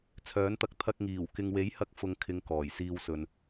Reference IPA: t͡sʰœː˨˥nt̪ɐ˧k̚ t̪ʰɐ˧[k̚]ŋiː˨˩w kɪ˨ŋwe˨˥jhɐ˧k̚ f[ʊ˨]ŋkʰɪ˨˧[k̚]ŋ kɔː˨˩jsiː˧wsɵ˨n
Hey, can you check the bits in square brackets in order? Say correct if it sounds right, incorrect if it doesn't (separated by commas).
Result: correct, correct, incorrect